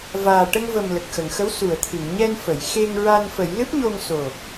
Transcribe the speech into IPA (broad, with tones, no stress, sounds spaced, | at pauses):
v aː˨˩ ʈ ə˧ ŋ v ə˨˩ m l ə˨˩ k̚ x ə˨˩˨ ŋ x ə˧˥ w s u˨˩˨ ə̯ t̪ʰ ɨ˨˩˨ ŋ ɲ ɛ˧ n f ə˨˩˨ j x e˧ ŋ ɹ a˧ n f ə˨˩˦ j l ɨ˦˥ p̚ ɲ o˧ ŋ s o˨˩